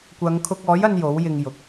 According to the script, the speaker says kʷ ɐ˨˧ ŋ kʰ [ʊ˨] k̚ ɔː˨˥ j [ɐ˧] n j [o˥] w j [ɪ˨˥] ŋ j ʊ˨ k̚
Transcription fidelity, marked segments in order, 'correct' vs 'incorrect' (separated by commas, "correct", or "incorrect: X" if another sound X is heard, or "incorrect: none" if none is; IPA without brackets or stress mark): incorrect: ʊ˧, correct, incorrect: o˨˥, incorrect: ɪ˧